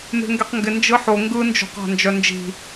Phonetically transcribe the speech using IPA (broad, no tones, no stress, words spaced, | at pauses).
me̤ŋɡeqŋɡɪ nd͡ʒɯħo ŋɡɯnd͡ʒo̤qa̤ nd͡ʒœnd͡ʒi̤